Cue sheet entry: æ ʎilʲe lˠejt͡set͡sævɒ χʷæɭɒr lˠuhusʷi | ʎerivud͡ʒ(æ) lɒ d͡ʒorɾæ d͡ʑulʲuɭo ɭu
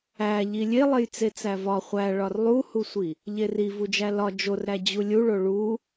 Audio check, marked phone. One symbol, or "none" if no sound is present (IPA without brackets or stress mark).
æ